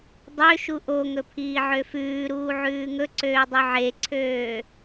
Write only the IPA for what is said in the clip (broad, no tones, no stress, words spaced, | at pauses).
dˤø ʃuʔoŋɵ pʰiːʕøfʉːɾuː ʕʉːŋɵǀøː dˤøʕeǀʰøː